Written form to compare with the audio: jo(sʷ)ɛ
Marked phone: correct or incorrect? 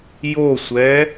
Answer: correct